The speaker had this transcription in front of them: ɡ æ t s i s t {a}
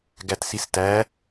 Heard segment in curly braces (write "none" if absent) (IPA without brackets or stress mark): æ